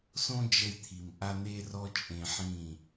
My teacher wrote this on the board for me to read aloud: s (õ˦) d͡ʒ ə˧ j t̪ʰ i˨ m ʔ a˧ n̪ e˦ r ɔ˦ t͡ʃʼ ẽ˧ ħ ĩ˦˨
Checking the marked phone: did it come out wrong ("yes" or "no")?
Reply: no